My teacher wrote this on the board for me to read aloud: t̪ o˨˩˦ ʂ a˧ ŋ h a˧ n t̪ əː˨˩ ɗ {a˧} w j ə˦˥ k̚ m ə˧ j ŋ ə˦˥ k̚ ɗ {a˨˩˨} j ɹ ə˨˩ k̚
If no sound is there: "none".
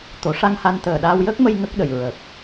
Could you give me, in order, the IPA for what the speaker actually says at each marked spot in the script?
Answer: a˧, ə˨˩˨

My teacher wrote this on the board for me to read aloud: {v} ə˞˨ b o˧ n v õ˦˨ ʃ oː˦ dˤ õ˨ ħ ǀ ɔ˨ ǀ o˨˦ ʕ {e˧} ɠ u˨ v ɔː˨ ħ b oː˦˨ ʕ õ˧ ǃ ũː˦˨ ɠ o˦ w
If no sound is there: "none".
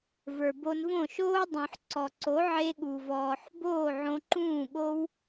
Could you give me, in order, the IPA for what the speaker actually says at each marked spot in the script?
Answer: v, e˧

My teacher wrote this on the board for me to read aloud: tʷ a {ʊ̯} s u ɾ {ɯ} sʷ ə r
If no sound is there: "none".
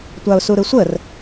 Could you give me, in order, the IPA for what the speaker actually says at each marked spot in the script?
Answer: ʊ̯, ɯ

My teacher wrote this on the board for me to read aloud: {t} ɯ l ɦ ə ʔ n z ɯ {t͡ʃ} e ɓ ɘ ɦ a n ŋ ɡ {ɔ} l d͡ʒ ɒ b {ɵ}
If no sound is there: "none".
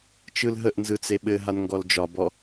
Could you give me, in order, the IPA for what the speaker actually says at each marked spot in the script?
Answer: t͡ʃ, t͡s, ɔ, ɔ

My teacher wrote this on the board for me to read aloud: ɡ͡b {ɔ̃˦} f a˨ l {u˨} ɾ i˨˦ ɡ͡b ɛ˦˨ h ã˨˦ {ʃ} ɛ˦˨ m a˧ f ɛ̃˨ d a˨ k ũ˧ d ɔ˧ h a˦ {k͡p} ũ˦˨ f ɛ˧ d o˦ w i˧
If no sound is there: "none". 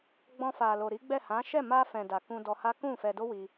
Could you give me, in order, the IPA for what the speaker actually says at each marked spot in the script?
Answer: ɔ̃˧, o˨, ʃ, k

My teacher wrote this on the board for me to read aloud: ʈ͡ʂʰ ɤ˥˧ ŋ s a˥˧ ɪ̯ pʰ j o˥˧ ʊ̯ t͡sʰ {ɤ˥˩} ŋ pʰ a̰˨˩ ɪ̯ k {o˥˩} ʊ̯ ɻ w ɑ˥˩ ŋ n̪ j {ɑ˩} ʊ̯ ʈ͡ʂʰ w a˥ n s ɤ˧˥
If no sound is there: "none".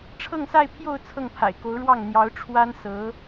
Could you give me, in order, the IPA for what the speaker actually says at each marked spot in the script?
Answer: ɤ˥˩, o˧˥, ɑ˧˥

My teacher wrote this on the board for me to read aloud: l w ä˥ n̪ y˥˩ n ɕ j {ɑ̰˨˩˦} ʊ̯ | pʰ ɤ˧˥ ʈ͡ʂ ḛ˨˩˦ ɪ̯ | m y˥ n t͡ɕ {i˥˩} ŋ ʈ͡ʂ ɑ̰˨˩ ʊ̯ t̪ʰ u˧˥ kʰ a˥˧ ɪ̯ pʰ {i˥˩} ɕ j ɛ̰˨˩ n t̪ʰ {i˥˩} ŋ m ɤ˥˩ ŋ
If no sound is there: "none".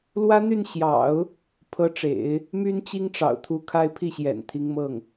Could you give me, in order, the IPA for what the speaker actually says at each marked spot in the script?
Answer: ɑ̰˨˩˦, i˥, i˥˩, i˧˥

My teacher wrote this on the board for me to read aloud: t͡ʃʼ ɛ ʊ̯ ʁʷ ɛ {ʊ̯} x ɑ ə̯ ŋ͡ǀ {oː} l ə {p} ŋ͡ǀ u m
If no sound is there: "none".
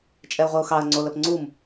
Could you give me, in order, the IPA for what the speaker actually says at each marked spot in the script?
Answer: ʊ̯, o, p

